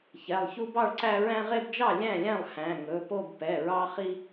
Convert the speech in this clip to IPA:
ç ɛ˩˧˩ lˠ ç u˦ b ɑ˥˨ ɭ ǀ æ˦ ɹ æ̃˦ ʁ e˦ b d͡ʒ ɑ˥˨ lʲ æ̃˥˨ lʲ æ̃˥˨ lˠ h æ̃˩˧˩ ŋ ɵ˩˧˩ p o˥˨ b p ɛ˩˧˩ ɹ ɑ˦ χ i˦

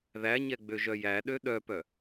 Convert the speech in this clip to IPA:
ð æ ɲ ɛ ɡ͡b ø ʒ œ j æ ɗ ø ɗ œ p œ

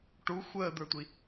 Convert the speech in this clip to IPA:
ʈ u xʷ əː d̪ ə˞ tʷ i

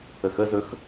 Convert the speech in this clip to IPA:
ə x ə z ɵ x

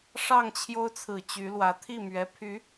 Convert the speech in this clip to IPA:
ʂ ɑ˥˩ ŋ t͡ɕʰ j o˥ ʊ̯ t͡sʰ ɹ̩˨˩ t͡ɕ y˧˥ l w ä˧˥ t̪ʰ i˥˩ m ɥ ɛ˧˥ pʰ y˧˥

